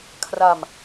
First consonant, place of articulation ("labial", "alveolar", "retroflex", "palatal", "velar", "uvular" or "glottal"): velar